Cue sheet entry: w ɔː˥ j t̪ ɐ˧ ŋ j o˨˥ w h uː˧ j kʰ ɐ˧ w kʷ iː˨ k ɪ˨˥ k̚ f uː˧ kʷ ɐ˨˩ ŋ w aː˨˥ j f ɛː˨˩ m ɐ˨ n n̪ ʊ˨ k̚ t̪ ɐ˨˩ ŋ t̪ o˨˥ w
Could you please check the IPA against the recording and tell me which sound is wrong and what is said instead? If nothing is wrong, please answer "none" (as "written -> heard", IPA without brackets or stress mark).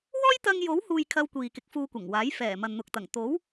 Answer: none